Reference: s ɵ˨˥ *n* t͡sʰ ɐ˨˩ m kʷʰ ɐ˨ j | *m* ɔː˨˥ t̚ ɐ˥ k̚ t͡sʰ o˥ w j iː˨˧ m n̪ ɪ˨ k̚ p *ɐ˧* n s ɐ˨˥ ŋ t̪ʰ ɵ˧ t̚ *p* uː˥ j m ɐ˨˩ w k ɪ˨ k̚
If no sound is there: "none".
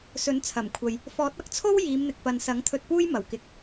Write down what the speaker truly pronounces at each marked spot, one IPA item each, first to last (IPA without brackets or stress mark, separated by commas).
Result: n, f, ɐ˨, p